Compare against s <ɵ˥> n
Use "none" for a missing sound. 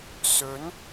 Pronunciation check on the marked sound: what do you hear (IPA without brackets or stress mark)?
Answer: ɵ˨˥